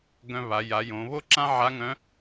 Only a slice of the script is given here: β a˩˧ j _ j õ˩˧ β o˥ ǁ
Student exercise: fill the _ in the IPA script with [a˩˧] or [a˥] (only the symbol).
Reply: a˩˧